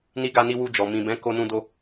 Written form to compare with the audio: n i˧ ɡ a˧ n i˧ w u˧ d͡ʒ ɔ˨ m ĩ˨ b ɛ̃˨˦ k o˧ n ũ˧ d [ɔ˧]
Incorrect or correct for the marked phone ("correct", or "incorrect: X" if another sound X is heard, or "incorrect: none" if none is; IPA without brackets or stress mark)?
incorrect: o˧